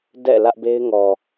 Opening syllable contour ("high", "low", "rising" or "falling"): falling